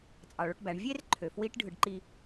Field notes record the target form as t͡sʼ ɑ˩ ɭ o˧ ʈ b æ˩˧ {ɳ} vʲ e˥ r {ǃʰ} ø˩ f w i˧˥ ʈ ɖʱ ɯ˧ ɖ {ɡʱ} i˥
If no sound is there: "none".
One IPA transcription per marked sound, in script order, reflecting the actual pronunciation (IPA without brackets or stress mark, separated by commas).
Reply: ɳ, ǃʰ, ǃ